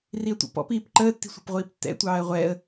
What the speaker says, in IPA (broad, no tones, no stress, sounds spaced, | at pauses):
r i ə̯ tʷ ə̰ p ɔ̰ p iː p ǃ əː tː i̤ sʷ ɛ̤ p ʁʷ iː p tː ɛ̰ tʷ ɑː ə̯ ʁʷ ɛ ə̯